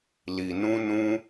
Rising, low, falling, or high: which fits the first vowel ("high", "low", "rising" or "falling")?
low